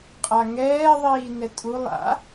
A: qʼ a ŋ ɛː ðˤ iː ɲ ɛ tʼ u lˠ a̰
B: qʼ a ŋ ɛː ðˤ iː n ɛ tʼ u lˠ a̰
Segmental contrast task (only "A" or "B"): B